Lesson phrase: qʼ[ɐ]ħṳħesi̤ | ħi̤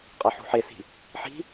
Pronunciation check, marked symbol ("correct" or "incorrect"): correct